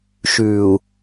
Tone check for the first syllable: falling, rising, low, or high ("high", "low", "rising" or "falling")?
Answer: low